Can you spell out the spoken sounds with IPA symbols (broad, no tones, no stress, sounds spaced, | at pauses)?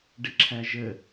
ɖ ɪ ǁʰ æ ʒ ə